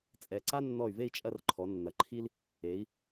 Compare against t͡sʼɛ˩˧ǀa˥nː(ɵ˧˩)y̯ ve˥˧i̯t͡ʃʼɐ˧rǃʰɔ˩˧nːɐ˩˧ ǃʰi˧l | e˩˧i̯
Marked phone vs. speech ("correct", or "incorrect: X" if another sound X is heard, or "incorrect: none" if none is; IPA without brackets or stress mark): incorrect: ɔ˧˩